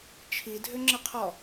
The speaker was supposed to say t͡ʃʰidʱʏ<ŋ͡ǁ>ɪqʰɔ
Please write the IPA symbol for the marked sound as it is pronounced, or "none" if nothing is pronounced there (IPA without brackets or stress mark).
ŋ͡ǁ